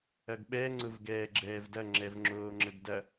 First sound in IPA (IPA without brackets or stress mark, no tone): ɐ